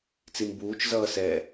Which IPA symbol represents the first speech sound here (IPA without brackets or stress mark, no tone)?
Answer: t͡s